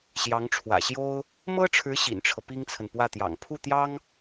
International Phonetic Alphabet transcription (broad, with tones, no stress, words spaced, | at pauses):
ɕjɑ˧˥ŋʈ͡ʂʰwä̰˨˩ɕjo˥ʊ̯ | mɤ˥ʈ͡ʂʰɻ̩˧˥ ɕḭ˨˩nʈ͡ʂʰɤ˦pi˥ŋt͡sʰə˨n pwä˥˩t̪jɑ̰˨˩ŋ pʰu˥˩t̪jɑ˥ŋ